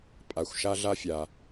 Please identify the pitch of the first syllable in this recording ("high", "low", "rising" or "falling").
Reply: low